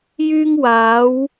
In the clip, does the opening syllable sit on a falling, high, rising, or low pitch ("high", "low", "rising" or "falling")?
high